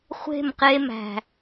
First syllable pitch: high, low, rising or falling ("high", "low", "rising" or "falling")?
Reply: falling